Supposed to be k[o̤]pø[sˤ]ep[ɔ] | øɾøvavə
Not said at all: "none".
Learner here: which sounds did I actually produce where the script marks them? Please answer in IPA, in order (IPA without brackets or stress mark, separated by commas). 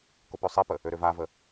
o, sˤ, ə